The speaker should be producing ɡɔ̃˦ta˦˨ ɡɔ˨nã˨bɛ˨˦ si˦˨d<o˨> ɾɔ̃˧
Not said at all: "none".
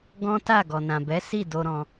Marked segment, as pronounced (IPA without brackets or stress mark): o˧